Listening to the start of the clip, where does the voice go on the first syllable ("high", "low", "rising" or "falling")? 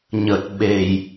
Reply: low